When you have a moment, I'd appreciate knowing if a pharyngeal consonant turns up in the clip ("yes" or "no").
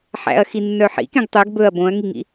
yes